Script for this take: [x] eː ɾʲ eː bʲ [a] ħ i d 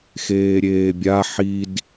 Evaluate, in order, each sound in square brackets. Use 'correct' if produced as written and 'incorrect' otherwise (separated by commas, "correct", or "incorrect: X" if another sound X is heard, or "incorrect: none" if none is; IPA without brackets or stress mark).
correct, correct